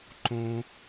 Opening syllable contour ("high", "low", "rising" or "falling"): high